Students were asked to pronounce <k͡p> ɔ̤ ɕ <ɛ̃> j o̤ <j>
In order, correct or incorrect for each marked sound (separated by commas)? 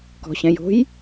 incorrect, correct, correct